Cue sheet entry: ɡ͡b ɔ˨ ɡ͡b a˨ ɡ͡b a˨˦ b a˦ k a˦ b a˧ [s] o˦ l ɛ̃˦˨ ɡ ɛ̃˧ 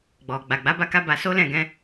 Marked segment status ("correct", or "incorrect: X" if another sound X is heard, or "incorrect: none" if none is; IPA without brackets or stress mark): correct